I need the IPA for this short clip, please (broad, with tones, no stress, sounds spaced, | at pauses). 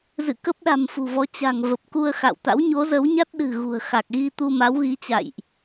z ɨ̰˧˨ k ə˦˥ p̚ ɗ a̤˨˩ m f ṳ˨˩ v ɔ˨˦ t͡ɕ a̤˨˩ ŋ v ə˨˩ p̚ k u˧ ə̯ x a̰˧˨ w t̪ a̰˧˥ w ɲ o˨˦ z ə˨˦ w ɲ a˦˥ t̚ ɗ ɨ̤˨˩ ɣ ṳ˨˩ ə̯ x a˨˩ k̚ ɣ i˧ t̪ u˧ m a˨˦ w ɣ i˨˦ t͡ɕ a̰˧˨ j ʔ